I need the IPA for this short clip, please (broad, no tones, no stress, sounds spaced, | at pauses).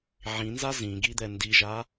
ʕ ĩ n z a z ĩ ɡ i d̪ ɛ n d i ʒ a